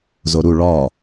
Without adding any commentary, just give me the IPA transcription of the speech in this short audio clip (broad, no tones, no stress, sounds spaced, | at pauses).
z o ɾ u ɭ ɒ